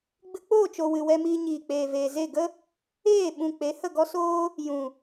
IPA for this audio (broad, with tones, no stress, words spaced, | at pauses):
ɡ͡bɨ˧k͡poː˦˨t͡ʃo˨ wɨ˨wɛ˧miː˧ ɲiː˨k͡peː˨veː˨ze˦˨ ɡə˦ | eː˦˨ɓũ˨ k͡pe˨˦hə˦˨ɡɔ˦soː˦ | jũ˨